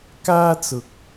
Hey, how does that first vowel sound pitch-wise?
high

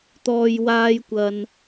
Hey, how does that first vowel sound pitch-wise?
low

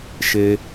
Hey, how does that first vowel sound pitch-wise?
high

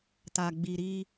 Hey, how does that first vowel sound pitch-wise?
low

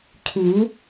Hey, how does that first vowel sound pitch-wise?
rising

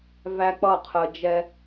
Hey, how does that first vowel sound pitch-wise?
high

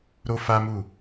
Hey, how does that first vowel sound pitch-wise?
high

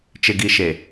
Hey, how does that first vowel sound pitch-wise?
low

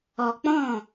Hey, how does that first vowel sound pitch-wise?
low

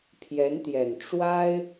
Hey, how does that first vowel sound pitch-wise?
rising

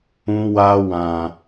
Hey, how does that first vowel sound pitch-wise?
high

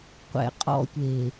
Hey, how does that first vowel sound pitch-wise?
low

